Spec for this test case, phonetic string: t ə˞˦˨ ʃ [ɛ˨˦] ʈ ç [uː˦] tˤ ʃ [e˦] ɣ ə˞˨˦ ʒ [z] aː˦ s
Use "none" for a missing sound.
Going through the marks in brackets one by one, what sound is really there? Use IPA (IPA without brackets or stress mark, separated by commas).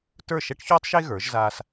ɛ˦, uː˦, e˦, z